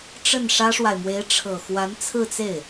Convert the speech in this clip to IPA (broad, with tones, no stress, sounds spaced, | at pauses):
ʈ͡ʂ ə˥˩ n ʂ ä˥ ʂ w a˨ ɪ̯ m w e˧˥ ɪ̯ ʈ͡ʂʰ ɤ˨˩ x w a˧˥ n t͡sʰ ɹ̩˥˧ t͡s e˥˩ ɪ̯